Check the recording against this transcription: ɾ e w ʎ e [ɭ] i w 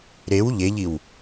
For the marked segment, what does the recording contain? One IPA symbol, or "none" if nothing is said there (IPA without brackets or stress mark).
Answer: ʎ